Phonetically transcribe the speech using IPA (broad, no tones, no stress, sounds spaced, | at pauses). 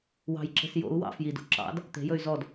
w ɑ̤ j ǁ e̤ s j o̰ u̯ w ɑ̰ f j i d o̰ ǁ ɑ̰ d | t̪ e̤ j ɵ y̯ z ɔ d